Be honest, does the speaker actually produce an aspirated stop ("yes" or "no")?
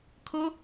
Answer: yes